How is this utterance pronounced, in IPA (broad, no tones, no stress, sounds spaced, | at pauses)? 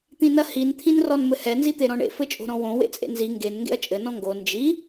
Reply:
t̪ ĩ n ɐ h i n t̪ʰ ĩ n r ɔ n m ɘ h ɛ n z i t̪ e ɾ ɔ̃ ɳ ḛ f ɘ t͡ʃʼ o̤ ɾ ɔ̃ w õ w ḛ t͡sʼ ḛ n z i ŋ ɡ e n ŋ ɡ ḛ ɐ̯ t͡ʃʼ ɘ n ɔ̃ ŋ ɡ o n d͡ʒ i